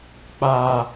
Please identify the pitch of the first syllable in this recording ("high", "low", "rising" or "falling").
high